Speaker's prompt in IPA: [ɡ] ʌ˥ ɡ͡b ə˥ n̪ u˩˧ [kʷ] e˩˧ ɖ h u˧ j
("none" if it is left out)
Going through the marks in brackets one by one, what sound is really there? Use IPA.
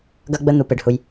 ɡ, p

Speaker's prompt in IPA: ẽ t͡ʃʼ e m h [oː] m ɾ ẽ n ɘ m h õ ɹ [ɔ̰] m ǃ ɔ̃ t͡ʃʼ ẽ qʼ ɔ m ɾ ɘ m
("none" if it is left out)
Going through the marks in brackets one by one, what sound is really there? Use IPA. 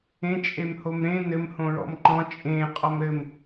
o, ɔ̰

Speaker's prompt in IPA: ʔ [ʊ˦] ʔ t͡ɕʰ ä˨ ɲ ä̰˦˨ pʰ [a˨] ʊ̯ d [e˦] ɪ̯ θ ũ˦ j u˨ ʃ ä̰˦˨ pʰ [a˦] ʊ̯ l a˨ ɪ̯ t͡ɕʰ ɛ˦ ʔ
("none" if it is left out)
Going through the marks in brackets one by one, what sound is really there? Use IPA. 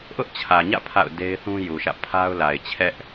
ʊ˦, a̰˦˨, e˦, a˦

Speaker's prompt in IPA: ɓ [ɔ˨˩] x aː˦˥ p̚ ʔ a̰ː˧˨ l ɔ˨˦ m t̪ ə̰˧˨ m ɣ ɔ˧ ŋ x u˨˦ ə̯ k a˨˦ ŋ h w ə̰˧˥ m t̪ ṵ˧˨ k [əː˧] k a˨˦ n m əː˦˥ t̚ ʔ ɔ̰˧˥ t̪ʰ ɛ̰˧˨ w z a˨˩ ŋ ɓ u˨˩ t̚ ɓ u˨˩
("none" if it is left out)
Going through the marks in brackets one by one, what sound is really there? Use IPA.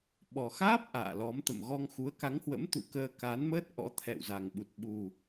ɔ˨˩, əː˧

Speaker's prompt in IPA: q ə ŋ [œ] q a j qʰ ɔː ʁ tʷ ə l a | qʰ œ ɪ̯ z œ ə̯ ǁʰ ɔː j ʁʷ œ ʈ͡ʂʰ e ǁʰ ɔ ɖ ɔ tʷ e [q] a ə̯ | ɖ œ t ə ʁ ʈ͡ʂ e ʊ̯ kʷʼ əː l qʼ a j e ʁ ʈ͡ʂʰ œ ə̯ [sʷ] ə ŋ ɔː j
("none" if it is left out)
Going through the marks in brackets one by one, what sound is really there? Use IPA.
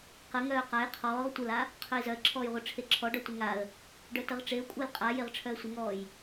œː, ŋ, sʷ

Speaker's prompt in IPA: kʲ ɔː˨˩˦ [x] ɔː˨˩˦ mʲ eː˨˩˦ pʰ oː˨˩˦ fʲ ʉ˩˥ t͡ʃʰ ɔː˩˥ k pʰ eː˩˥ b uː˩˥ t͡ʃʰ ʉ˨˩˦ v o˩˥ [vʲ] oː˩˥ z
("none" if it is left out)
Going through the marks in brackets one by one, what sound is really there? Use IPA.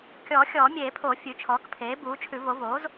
xʲ, v

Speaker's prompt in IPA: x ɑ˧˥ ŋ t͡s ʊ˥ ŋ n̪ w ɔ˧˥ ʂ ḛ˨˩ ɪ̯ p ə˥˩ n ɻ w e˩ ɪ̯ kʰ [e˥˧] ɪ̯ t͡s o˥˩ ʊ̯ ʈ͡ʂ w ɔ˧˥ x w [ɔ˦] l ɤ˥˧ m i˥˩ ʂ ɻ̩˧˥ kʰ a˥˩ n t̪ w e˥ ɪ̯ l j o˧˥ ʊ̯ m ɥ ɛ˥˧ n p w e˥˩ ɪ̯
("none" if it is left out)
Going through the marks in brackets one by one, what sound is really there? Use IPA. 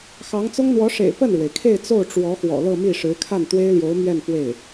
e˥˧, ɔ̰˨˩

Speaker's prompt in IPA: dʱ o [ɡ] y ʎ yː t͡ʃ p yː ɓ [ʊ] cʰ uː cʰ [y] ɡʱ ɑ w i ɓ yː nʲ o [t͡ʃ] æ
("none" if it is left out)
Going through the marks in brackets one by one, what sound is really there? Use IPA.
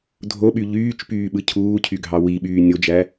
ɓ, ɯ, y, d͡ʒ

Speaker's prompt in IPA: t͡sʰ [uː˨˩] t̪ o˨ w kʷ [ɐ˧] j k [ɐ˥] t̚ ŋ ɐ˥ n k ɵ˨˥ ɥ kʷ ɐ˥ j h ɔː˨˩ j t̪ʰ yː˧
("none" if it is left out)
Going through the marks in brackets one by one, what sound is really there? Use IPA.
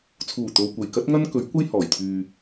uː˨˩, ɐ˨˩, ɐ˥

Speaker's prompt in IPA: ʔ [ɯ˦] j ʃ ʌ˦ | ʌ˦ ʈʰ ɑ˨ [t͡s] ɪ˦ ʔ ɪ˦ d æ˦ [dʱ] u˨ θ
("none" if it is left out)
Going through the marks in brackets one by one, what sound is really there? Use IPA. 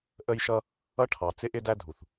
ə˦, t͡s, dʱ

